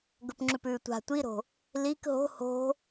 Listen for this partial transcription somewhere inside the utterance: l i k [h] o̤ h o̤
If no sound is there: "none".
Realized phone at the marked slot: ɦ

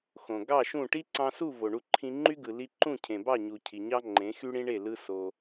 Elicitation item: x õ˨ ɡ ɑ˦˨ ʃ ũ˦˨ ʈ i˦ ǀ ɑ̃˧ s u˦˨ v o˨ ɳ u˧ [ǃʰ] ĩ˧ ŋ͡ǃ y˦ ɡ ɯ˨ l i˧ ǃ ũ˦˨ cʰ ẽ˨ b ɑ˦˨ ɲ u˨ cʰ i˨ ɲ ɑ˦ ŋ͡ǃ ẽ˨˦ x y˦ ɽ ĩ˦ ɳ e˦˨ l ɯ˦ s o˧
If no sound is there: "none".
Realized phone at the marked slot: ǃʰ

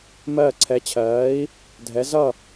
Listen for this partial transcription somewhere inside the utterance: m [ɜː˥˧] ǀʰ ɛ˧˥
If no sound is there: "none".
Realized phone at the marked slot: ɜː˥˧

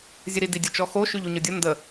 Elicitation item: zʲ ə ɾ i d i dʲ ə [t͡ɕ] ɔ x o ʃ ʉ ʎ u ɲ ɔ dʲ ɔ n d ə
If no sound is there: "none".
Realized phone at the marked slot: t͡ʃ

